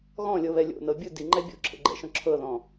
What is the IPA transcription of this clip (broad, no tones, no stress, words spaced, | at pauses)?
ɣɔ̃lʲɤβɛ lʲo̰nɤ bʲɯ diŋ͡ǃɛ bʲo̰ǁʰḛɡ͡ǃɛ̰ʃɔ̃ ǁʰɤðɔ̃